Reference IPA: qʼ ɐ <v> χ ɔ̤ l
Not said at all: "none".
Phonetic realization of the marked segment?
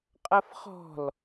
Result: f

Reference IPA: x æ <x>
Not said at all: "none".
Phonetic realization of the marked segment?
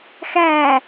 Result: none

